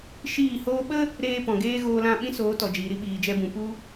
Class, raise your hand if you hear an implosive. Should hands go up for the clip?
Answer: yes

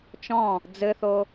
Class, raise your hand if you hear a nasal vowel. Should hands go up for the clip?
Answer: yes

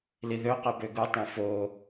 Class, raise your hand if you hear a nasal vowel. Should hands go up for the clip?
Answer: yes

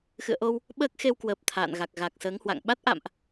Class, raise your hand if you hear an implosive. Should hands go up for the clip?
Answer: yes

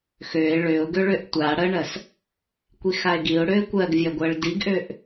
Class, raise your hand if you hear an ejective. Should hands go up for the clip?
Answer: no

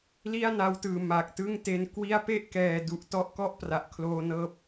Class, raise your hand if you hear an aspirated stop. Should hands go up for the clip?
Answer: yes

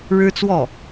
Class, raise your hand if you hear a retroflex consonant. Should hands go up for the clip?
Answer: yes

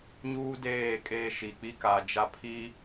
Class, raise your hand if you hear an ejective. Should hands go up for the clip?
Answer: yes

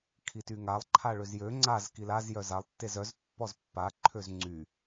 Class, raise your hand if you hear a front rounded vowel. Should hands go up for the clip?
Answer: yes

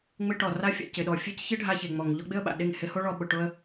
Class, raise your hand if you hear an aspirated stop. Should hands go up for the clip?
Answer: no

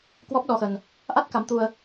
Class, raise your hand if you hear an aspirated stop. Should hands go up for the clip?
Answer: no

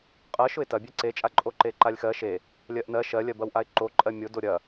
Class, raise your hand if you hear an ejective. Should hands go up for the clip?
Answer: yes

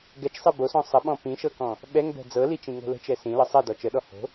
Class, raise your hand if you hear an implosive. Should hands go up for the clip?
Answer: yes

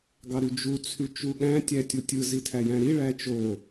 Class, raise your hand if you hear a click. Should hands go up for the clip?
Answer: no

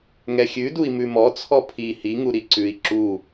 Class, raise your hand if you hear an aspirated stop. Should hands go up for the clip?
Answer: yes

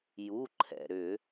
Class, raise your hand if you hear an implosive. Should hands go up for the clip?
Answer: no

